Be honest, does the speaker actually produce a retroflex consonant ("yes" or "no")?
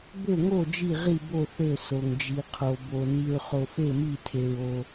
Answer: no